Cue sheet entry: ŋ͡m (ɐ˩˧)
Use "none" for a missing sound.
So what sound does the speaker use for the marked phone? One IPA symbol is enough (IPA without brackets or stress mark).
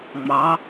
ɑ˩˧